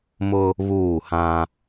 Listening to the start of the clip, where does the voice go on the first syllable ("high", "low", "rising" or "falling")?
high